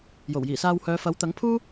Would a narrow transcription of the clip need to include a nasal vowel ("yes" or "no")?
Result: no